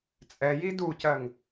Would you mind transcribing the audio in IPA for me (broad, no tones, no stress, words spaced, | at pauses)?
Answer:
t͡sʼɛji ducɜŋ